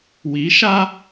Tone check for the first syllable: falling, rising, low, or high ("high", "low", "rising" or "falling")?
rising